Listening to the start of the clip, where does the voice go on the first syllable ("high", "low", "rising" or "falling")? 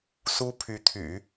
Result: high